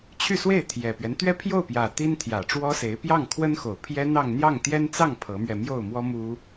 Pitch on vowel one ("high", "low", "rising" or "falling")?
falling